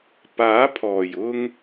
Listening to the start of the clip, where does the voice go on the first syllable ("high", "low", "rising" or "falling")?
rising